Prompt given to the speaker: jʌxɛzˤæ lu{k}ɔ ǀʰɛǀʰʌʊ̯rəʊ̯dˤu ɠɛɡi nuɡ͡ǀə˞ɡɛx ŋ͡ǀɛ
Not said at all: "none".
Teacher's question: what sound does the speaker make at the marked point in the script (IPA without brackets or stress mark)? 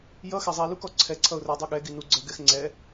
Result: k